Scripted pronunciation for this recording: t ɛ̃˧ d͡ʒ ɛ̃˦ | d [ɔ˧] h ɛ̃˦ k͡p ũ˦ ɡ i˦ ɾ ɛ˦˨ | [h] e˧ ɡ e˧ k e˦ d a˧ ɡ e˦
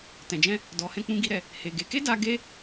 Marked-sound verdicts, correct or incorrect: correct, correct

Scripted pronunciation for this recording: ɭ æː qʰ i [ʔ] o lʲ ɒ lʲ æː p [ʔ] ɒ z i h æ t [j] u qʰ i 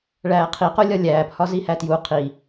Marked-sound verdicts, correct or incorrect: incorrect, incorrect, correct

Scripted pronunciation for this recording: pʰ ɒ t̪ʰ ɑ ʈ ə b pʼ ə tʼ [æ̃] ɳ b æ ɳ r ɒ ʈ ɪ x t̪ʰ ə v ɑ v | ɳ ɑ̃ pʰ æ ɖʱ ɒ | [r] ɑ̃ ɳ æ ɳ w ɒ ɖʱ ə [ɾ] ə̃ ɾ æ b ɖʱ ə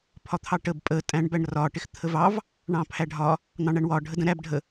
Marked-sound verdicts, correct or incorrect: correct, incorrect, incorrect

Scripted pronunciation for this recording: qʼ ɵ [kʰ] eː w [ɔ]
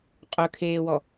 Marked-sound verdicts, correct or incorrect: correct, correct

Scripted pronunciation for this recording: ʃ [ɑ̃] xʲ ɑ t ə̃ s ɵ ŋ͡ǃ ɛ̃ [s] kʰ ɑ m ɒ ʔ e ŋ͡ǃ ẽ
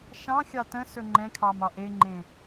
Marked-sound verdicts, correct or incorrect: correct, incorrect

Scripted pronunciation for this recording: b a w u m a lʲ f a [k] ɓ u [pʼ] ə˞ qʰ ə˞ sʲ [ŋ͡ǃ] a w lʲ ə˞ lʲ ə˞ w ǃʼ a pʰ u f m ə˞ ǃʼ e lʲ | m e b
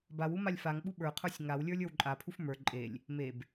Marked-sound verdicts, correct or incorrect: incorrect, incorrect, incorrect

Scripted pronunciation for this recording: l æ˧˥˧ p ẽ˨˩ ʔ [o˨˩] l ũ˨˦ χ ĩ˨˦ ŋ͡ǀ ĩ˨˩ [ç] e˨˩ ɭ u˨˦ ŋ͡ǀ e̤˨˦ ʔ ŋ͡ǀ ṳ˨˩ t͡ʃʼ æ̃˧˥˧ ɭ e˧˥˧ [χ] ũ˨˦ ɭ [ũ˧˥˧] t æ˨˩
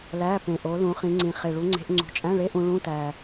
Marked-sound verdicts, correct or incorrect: incorrect, incorrect, incorrect, correct

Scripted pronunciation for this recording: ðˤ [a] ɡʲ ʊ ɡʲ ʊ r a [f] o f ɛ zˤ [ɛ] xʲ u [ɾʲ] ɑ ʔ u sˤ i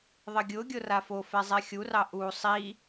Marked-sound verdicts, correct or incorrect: incorrect, correct, correct, incorrect

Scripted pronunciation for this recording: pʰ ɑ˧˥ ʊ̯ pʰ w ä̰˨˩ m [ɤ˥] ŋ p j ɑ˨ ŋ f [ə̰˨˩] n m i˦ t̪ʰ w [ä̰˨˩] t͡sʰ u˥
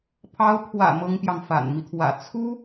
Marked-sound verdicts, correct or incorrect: correct, incorrect, correct

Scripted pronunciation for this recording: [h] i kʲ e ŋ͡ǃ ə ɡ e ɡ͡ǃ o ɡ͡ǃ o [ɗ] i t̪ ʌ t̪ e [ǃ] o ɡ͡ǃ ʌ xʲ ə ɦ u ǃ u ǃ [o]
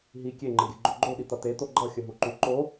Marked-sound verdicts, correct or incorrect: incorrect, correct, incorrect, correct

